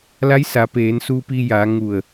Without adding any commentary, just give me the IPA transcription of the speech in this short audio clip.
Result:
l a˧˥ j s a˩˧ p eː˩˧ n s u˧ p i˧ j a˩˧ ŋ u˧˩ ə̯

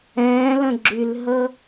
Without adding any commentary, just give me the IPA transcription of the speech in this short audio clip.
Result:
ɛ̃ː l ə̃ ɡ͡ǁ y l ɦ ə

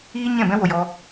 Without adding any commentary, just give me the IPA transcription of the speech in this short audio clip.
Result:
iː˦ ɲ ɛ̃˦˨ b ɛ̃˦ w o˨ j ɔ˧

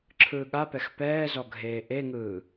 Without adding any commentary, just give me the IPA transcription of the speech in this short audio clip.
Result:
ǁʰ ɯː ɠ a p ɛ x p ɛː z ɔ ɡʱ eː ʔ e ŋ ɯː

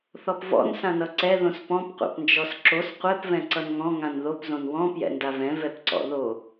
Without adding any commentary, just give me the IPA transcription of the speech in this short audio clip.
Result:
θ ɔ p v ɔ̰ n s ã n ʌ ǀ ɛ ð õ s p ɔ̃ p qʷ a̰ p n d͡ʒ ɔ s ǁ o s qʷ ɛ p v ɛ̃ ǀ ʌ n ŋ ɔ̃ ŋ ã n ð o p z õ n w ɔ̃ p j ɛ̰ n d a v ɛ̃ v ɛ p ǀ ɔ̰ ð o

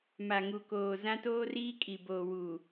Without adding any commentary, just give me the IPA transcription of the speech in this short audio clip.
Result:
m a˨ ŋ u˨ k oː˨ z ã˦ t oː˦ r iː˦ kʼ i˨ b oː˨ w uː˨

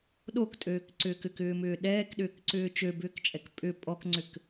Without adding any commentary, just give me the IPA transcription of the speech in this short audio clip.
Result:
ɗ o k tʼ øː k ǀ ʏː k ʏ k ʏː m ʏː ɗ ɛː k ɗ ʏː k ǀ ʏː t͡ʃ ø b ʏː k t͡ʃʼ ɛ k pʼ ʏ pʼ ɔ k ŋ͡ǀ ʏ k

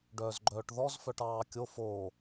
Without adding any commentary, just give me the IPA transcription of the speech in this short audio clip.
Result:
ɖ œː z ɡ͡ǃ œː ʈ ð ɔ z f œ ʈ ɑː kʲ o f oː

